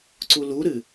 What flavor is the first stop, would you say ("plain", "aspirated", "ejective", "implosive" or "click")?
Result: click